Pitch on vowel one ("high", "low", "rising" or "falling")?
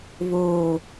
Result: low